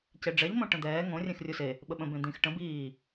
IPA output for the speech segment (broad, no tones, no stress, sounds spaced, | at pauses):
c e ɖ͡ʐ ɛ ʎ m õ ʈ ə̃ d̪ ɛː ŋ õ rʲ ẽ x rʲ u s e | ɓ ə ɓ ə̃ b ẽ d̪ ĩ x ʈ ə̃ b iː